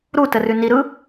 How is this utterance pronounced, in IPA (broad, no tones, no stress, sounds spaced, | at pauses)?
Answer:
ɾ u t ə r ʉ n i ɾ ɯ